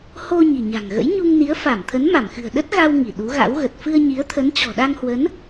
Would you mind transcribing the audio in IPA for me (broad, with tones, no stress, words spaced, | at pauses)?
ho˧ ɲi̤˨˩ɲa̤˨˩ŋɣə̰˧˥j ɲu˧ŋ ni˨˦ə̯fa˧˩mt̪ʰə˨˦n ma˧˩mxɨ̤˨˩ə̯ ɗə˦˥t̚ ɣa˧w ŋi˧˩ɗu˨˦ɣa̰˧˥wɣə˨˩t̚ fɨ˧ə̯ɲi˨˦ə̯t̪ʰə˨˦n t͡ɕɔ̤˨˩ɗa˧ŋhwə˨˦n